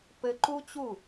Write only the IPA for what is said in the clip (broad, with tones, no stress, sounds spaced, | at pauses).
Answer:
p ɘ˧ ǃ u˥ t͡ɕ u˥˩